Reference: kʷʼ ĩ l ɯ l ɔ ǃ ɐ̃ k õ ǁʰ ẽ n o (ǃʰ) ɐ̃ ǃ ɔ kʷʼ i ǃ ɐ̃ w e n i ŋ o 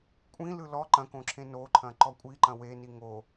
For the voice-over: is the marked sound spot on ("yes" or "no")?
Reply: yes